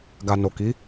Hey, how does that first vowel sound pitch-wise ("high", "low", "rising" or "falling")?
low